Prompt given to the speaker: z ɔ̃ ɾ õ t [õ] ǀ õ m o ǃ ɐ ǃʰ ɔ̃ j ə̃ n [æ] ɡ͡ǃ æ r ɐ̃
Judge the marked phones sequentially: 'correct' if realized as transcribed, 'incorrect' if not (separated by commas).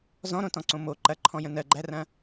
incorrect, incorrect